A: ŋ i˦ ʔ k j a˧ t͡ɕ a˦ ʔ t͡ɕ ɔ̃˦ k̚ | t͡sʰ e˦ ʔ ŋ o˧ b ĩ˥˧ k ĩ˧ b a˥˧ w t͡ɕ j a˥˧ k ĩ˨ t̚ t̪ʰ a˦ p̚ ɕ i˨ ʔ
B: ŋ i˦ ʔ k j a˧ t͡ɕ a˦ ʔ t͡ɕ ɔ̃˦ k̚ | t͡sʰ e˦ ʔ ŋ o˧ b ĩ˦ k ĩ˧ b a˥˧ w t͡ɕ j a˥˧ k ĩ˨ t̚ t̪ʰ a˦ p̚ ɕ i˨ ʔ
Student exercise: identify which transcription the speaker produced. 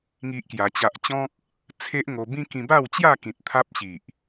B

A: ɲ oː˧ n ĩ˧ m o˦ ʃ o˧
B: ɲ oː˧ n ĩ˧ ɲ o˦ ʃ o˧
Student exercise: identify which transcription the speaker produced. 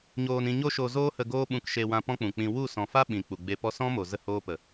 B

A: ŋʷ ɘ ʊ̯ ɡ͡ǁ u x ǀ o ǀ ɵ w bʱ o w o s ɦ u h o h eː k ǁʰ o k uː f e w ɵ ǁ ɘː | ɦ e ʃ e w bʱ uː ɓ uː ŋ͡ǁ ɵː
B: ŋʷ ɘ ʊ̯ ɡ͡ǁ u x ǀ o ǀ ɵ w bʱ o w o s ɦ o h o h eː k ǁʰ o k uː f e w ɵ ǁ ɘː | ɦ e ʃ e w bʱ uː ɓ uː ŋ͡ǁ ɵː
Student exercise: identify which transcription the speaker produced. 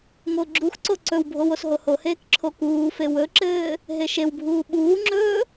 B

